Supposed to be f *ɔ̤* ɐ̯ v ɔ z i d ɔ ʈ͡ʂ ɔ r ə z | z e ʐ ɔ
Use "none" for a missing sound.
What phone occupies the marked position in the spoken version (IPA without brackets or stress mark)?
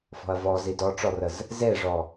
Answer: ɔ̤